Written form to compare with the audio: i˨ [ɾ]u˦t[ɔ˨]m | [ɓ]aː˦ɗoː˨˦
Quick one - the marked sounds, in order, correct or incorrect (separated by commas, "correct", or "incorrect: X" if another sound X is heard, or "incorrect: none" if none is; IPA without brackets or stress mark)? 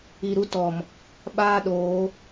correct, correct, correct